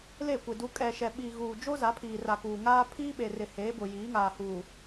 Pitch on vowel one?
falling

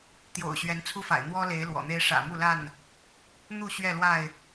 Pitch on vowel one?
low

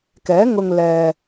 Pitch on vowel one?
rising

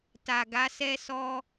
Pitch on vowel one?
low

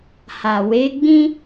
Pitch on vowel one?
low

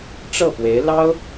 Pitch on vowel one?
falling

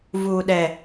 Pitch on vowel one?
low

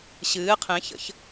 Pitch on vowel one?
rising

